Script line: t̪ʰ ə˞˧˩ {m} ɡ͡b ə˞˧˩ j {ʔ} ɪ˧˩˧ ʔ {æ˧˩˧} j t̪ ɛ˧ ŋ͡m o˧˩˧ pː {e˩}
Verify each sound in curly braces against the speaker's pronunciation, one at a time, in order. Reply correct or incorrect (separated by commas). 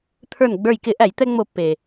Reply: incorrect, incorrect, correct, correct